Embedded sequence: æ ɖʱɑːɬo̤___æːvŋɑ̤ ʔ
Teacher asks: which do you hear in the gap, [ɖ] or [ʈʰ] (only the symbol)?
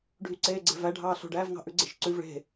ɖ